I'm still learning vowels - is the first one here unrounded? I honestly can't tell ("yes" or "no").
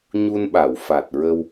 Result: no